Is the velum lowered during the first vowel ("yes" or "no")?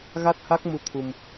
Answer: no